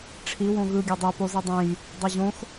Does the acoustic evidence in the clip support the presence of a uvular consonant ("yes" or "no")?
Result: no